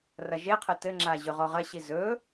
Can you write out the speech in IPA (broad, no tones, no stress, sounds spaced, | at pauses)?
r ɐ ʒ e qʰ ɘ t ɘ ŋ͡ǁ a ʑ ɵ ʁ ɔ ʁ ɐ ɕ i z ɵ